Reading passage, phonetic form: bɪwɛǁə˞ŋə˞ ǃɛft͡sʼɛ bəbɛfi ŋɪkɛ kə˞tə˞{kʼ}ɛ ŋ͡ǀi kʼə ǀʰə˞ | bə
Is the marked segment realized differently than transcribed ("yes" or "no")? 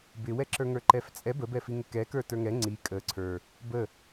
yes